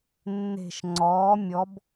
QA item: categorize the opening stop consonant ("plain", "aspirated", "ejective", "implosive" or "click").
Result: click